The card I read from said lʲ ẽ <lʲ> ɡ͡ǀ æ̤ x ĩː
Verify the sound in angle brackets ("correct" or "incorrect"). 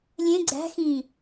incorrect